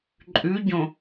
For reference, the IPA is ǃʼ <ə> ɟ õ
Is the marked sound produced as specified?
no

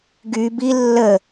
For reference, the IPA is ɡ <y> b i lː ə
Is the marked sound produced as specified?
yes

